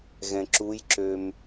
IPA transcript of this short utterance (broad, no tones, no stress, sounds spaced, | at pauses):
ɣ ɛ̃ ǁ u j ǁ ø m